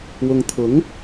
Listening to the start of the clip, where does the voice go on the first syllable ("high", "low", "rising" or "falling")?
low